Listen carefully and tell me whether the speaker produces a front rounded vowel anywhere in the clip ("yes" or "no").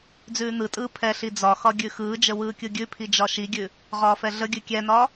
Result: no